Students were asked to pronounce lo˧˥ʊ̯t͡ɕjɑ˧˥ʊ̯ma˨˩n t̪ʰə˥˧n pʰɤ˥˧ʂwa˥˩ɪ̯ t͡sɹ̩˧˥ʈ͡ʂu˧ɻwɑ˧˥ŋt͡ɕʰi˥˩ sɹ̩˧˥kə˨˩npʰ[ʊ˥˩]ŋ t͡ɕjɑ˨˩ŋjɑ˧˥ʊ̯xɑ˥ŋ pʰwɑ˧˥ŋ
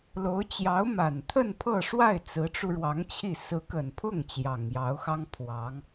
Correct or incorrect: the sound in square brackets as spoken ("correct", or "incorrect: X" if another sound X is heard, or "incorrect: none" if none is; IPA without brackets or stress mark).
correct